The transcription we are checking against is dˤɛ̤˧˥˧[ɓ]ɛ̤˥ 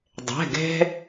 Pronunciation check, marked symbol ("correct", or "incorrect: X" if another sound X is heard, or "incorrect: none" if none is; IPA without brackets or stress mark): incorrect: ɡ